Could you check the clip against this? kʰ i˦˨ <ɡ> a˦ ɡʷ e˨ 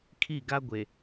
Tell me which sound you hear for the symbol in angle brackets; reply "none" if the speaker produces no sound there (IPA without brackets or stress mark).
ɡ